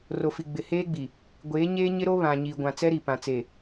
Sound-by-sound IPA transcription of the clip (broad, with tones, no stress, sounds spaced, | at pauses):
r o˨ f i˨ ɡ͡b ɪ˨ h eː˦ ɡ͡b i˨ | ɡʷ eː˨˦ ɲ eː˦ ɲ ɪ˦ ɾ o˦ β ã˨ ɲ i˨ ɡʷ ã˨ t͡s ɛ˦ ɾ i˨ p ã˨ t͡s e˨